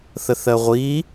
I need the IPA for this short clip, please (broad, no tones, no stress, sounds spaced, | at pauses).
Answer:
θ ə θ ɜ ʁʷ i